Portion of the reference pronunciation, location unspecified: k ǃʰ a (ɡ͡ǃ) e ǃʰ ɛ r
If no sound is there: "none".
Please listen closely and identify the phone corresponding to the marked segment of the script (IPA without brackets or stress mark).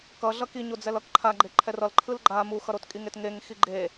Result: ɡ͡ǃ